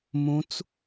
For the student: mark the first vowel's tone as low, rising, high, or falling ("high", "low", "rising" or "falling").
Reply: rising